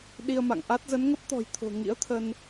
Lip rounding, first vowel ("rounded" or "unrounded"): unrounded